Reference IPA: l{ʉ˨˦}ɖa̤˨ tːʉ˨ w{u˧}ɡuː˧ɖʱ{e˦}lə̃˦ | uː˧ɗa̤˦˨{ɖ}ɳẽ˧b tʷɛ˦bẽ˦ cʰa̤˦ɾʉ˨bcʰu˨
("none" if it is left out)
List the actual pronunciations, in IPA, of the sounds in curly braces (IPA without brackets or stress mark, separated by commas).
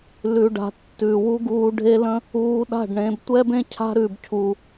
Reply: ʉ˨, u˦, e˦, ɖ